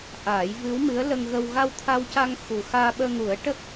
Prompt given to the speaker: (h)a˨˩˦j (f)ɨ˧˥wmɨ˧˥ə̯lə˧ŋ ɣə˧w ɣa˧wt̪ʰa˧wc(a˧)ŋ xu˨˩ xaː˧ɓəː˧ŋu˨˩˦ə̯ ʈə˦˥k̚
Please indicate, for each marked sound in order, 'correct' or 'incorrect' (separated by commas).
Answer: incorrect, incorrect, correct